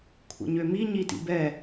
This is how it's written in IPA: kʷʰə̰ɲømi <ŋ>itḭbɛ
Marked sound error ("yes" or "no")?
yes